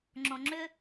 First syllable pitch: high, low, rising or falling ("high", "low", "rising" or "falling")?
low